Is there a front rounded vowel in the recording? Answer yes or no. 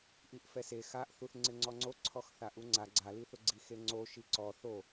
no